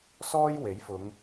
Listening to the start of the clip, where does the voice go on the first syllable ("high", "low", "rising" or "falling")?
high